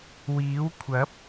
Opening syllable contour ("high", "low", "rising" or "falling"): rising